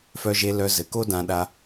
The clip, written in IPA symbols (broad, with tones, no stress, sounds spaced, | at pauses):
f œ˧ ʒ e˧ l œ˧ z ɘ˩ k o˥ d ã˧ ɗ a˧